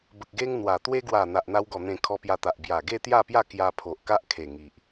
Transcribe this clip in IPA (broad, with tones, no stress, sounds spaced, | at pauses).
b ə˨ k̚ ɡ e˧ ŋ n̪ w a˨˩ t̪ w e˧ ɡ w a˨˩ n̪ a˨ ʔ n̪ a˧ w ɡ ɔ˨˩ n̪ ẽ˨˩ kʰ ɔ˧ p j a˧ t̪ a˨ ʔ b j a˨˩ ɡ e˥˧ t̪ j a˥˧ p j a˥˧ k j a˧ pʰ o˨ ʔ k a˦ ʔ kʰ e˨˩ ŋ i˨ ʔ